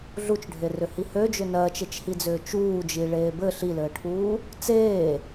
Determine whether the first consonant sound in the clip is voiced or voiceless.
voiced